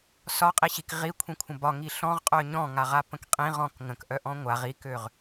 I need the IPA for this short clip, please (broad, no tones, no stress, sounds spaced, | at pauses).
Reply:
s ɒ qʼ i ɕ i k ʁ i kʷʰ ĩ kʷʰ ə̃ b ɒ ŋ i ɬ ɔ̃ ʁ qʼ œ ɲ ɔ̃ ŋ a ʁ a p ə̃ k qʼ ĩ ʁ ɔ̃ k ŋ ə̃ k ʔ œ ʔ ɔ̃ ŋʷ a ʁ i k ø ʁ